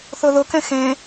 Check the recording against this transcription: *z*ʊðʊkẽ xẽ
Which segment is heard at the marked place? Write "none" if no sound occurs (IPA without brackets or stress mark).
θ